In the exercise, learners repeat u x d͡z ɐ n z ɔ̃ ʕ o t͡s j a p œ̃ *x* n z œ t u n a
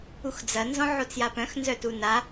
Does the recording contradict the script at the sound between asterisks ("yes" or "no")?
no